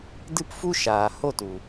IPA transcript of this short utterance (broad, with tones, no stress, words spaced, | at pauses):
dɨ˦pfu˦ʃaː˨ ho˦˨tu˨